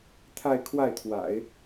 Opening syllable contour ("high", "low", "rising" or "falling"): falling